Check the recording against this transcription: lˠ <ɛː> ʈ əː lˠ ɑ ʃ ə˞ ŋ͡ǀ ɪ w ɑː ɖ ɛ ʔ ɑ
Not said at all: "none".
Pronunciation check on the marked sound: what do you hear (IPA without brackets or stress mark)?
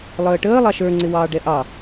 əː